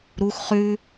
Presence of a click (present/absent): absent